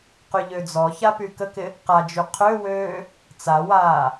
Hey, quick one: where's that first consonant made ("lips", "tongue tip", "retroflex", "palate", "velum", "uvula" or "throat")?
uvula